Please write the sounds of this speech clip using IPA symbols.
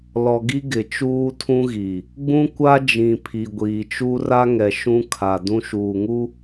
lɔ˨ɡi˦ ɡɪ˨t͡ʃuː˦tʰũ˦ɣi˨ | ɡ͡bũ˦kʷa˦d͡ʒĩ˨ pʰi˨ɡʷiː˨t͡ʃu˦ ra˦ŋɛ˨ ʃũ˦kʰa˨ dũ˦ʃuː˨ŋu˦

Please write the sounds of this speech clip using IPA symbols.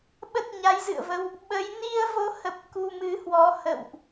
ɓə˦˥t̚ɲa˨˦jzɨ̰˧˨ə̯və˧w | ɓə˨˦j ni˧ə̯vo˨˦hə˨˩p̚ ku˧mɨ˨˦hwɔ˨˦ hə̰˧˨wʔ

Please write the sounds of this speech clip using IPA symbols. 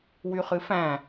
wyχɨfæ̃

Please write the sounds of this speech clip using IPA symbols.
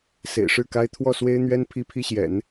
sḛ˨˩ɪ̯ʂɻ̩˥˩ka˥ɪ̯ t̪ʰwɔ˥˩swe˥ɪ̯n̪ɥɛ˥n pʰi˥pʰi˥ɕjɛ̰˨˩˦n

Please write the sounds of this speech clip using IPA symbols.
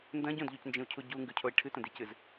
ndɐ̃ ɟõdʎucnd͡ʒĩu̯cʰu ɟuŋɡʉcʰoi̯ ʈʰɨtɐ̃dicɨz

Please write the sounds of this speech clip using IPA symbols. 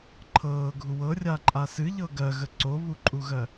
ǃʰɤːɡʱu wɤrʲaǃʼa sɨʎɤ ɡɜɣə ǀoβuǃʼuɣɜ

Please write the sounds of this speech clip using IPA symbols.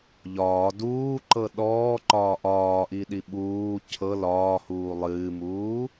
ʎɒː duːǃɤ ɗɔːǃɒː ʔɒːʔiɗi ɓuː cʰɤ lɒːhuː lˠɨːmuː

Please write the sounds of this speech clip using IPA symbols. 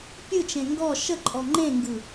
pʲɯt͡ʃẽ ŋɡɔ ʃəǃʼɔ ŋ͡ǃẽŋɡɯ

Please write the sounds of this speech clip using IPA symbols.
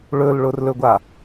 ɭɵlɭʊrlɵɡʷa

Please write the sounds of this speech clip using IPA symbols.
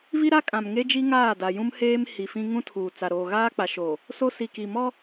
vi˦ɾa˦kʼã˨m ŋe˦d͡ʒi˦ ŋaː˦˨da˨jũ˦mheː˦m hi˨fĩ˦ ŋũ˦tʰuː˨t͡sa˨ ɾoː˨ɣaː˦k͡pa˨ʃoː˨ | so˦ si˨ki˨mɔ˦

